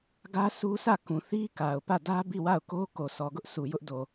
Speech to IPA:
ɡ ä˦ sʰ u˦ s ä˦˨ k ũ˨ θ i˦ k a˨ ʊ̯ p ä˦˨ d ä˦ b i˦˨ w a˦˨ ʊ̯ k o˦ k o˨ s ɔ˨ ɡ ʊ˦ ʔ s u˨ j ʊ˦ ʔ d o˨

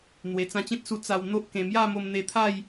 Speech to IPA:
n̪ w e˨˩ t͡s ã˧ t͡ɕ ẽ˦ t̚ s u˧ t͡s a˧ w n̪ o˦ ʔ k ẽ˧ m j a˥˧ m o˧ m n̪ e˧ t̪ʰ a˥˧ j

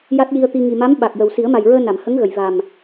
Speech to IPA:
j a˦˥ t̚ j i˧ ə̯ t̪ i˧ ŋ i˨˩ m a˧˥ m ɓ a˨˩ k̚ j ə˨˩ w s i˨˩˦ ə̯ m a˨˩ j ɹ əː˧ n a˨˩˨ m h ə˧˥ ŋ ɣ ə˨˩˨ j v a˨˩ m

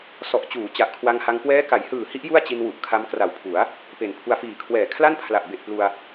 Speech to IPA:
s ɔ˨˩ ʔ t͡ɕ uː˩˦ t͡ɕ a˨˩ ʔ kʰ w a˧ ŋ h a˧ ŋ k w ɛː˦˥ k a˩˦ j h ɯː˨˩ h i˦˥ ʔ j u˥˩ a̯ t͡ɕ i˧ n w u˨˩ ʔ kʰ a˧ m k r a˨˩ w pʰ u˩˦ a̯ | p e˩˦ n pʰ u˧ a̯ f iː˨˩ kʰ w ɛː˨˩ kʰ l a˥˩ n pʰ l a˨˩ ʔ b e˨˩ ʔ p l u˧ a̯

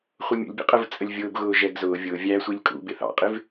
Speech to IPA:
χʷ ə mʲ ṵ lʲ bʲ ə̰ qʼ ə v t͡sʼ ə lʲ vʲ ʊː b ɣ ʊː ʒ ɛ ɡ z ʊː vʲ ʊː vʲ æ sʷ i lʲ kʼ ṵ b ɪ θ ɑ̰ qʼ ɪ v

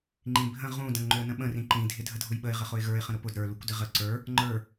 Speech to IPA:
ŋ͡ǃ ĩ bʱ ə̃ ʁ ũ d ə̃ ŋ ŋ͡ǃ ʏ ə̯ n ə̃ ɓ ə̃ r ĩ ǃ ĩ dʱ ɪ dʱ ə dʱ ʊ j ɓ ə ɪ̯ ʁ ə χ ʊ ɪ̯ ɣ ə˞ ɪ̯ χ ə̃ ɾ ʊ p ʊ d ɾ ə˞ l u kʷ d ɪ ʁ ə ǀ ə˞ | ŋ͡ǃ ə˞

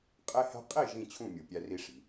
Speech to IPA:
qʼ e˥ h æ̤˥ qʼ i˥˩ ʒ ĩ˥˩ t͡ɕʰ ũ˥˩ mʲ u˩ pʲ æ˧ r i˧ ʂ i̤˩

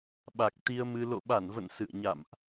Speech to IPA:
ɓ a˨˩ k̚ t̪ i˧ ə̯ m ɨ˧ l o̰˧˨ ɓ a˧˩ n v ə̰˧˨ n s ɨ̰˧˨ ə̯ ɲ a̰˧˨ m ʔ

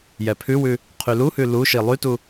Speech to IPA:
j ɛ pʰ ʉ w ʉ | qʰ y l u h ʉ l u ʃ i lˠ y t u

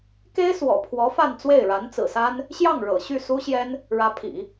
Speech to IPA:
k e˥ ɪ̯ s w ɔ̰˨˩ pʰ w ɔ˧˥ f a˥˧ n t͡s w e˥˩ ɪ̯ ɻ a˧˥ n t͡s ɹ̩˨˩ s a˥ n | ɕ j ɑ˥˩ ŋ ɻ ɤ̰˨˩ ɕ y˥˩ s u˥ ɕ j ɛ˥ n | ɻ ä˧˥ pʰ ḭ˨˩˦

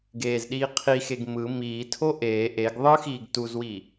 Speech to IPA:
ɡ eː z ɗ iː qʰ i x e ɡ m ɯ m iː tʰ o ʔ eː ʔ e ɡ ðˤ ɯ x iː ɡ t u z w i

